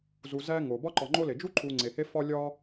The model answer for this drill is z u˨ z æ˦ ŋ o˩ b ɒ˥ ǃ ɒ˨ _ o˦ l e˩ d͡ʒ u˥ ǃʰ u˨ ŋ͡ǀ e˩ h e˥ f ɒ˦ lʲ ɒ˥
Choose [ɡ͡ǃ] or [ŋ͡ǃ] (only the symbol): ŋ͡ǃ